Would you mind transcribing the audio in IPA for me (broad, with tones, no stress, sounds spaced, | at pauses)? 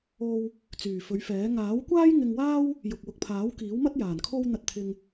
o˧ w | t͡s yː˨˩ f ɵ˨˧ ɥ f ɛː˨˥ ŋ aː˨˥ w kʷ aː˥ j ŋ ɪ˧ ŋ w aː˥ w | j ʊ˨ k̚ w ʊ˨ k̚ pʰ aː˨˥ w k iː˨˥ w m ɐ˥ t̚ j aː˨˩ n kʰ o˥ w n̪ ɐ˧ t̚ t̪ʰ ɪ˧ ŋ